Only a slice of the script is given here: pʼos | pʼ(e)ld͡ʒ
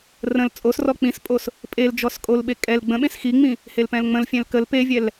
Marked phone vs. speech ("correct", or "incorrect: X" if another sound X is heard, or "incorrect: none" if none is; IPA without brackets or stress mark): correct